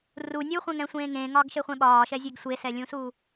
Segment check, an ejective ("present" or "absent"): absent